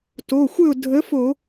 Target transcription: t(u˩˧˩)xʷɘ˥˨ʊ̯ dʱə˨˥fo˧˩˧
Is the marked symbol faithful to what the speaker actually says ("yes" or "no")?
no